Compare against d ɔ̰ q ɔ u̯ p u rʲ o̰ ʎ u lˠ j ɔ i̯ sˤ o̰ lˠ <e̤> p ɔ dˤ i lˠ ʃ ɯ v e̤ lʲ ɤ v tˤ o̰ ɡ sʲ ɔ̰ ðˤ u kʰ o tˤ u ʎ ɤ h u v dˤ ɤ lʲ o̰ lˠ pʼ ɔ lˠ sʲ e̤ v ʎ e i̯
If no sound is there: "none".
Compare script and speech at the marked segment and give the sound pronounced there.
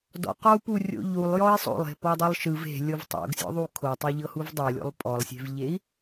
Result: e̤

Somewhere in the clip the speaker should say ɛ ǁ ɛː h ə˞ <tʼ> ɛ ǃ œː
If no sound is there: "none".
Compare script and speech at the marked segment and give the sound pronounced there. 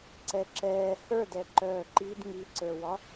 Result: d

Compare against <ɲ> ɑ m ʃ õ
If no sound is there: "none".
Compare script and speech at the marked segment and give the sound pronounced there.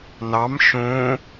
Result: n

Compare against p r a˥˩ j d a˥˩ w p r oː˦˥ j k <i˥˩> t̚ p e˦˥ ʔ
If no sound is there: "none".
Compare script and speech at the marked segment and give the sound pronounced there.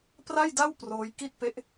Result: i˥˩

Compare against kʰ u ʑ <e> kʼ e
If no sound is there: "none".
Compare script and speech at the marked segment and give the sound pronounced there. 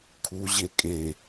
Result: e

